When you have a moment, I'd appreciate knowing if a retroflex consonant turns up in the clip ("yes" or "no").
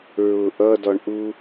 yes